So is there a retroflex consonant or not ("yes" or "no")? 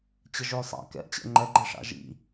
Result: yes